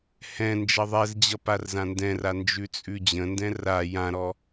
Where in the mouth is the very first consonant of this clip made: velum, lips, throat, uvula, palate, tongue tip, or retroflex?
throat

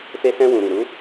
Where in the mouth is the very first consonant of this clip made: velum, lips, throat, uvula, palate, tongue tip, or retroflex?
lips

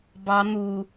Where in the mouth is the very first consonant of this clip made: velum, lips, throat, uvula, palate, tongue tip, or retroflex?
lips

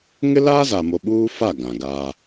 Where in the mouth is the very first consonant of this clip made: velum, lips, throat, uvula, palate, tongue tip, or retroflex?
velum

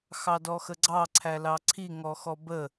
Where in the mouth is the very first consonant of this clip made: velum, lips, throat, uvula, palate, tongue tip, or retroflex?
velum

